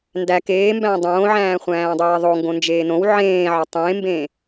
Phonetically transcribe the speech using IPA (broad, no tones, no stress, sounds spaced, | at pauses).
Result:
n d æ k eː m b æ̃ː dˤ õː ʕ æ̃ː χʷ æ̃ː dˤ eː ðˤ o ŋ ɡ õ n d͡ʒ eː n õ w ʕ ẽː ʕ ɒ tˤ ẽː m b ẽː